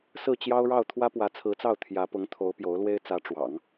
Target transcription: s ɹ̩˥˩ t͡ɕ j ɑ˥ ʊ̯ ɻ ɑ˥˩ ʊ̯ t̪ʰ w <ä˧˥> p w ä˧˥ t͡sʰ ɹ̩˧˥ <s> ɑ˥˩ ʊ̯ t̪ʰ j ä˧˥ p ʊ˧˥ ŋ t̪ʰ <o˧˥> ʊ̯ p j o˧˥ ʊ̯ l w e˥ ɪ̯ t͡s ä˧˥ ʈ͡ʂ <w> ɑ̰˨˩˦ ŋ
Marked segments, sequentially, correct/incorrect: incorrect, incorrect, correct, correct

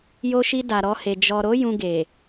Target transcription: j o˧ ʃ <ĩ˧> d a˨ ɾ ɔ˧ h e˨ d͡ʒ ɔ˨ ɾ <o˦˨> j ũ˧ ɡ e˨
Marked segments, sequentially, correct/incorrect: incorrect, incorrect

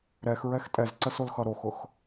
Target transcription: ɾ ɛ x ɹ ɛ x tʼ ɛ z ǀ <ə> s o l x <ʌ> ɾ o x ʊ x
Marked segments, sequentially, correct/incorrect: correct, correct

